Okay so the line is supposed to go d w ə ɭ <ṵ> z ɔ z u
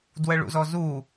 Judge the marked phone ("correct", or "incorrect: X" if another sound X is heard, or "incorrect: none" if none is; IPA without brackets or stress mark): correct